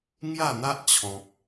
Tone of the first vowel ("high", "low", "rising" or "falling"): falling